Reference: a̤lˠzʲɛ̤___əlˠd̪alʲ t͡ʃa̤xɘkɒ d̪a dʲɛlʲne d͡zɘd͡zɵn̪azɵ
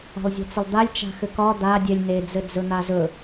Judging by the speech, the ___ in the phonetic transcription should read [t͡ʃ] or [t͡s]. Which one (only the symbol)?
t͡s